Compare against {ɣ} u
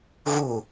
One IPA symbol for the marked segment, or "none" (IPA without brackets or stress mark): ɣ